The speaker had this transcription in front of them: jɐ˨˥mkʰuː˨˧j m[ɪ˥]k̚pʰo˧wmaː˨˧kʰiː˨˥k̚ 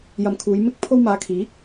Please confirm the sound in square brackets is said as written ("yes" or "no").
no